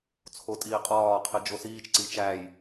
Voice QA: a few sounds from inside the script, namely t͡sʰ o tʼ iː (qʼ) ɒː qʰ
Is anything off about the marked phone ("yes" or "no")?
no